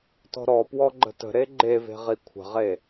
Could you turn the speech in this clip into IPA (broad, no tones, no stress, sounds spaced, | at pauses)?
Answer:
t ɔ̤ ɾ ɔ p w ɔ ɡ͡ǃ ə̤ t ə̤ ɾ e ɡ͡ǃ e v e̤ ʁ i kʷʰ ə̤ ʁ e